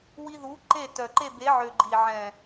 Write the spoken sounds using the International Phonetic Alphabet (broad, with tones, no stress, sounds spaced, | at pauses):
w i˧ ð u˨˦ ǃ e˦˨ t œ˨ ǃ e˦˨ b e˨˦ ʕ ø˨ ɡ͡ǃ i˨ ʕ ɛ̃˨